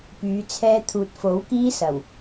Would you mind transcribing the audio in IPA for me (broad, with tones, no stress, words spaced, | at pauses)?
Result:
pyː˨˧t͡sʰɛː˥t̪ʰuː˧t̚ fo˨˥wkiː˥ sɐ˨˩w